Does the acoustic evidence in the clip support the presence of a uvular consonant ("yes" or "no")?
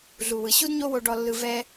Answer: no